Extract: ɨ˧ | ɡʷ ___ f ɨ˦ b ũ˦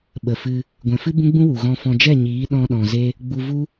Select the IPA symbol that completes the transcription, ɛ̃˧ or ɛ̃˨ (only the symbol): ɛ̃˨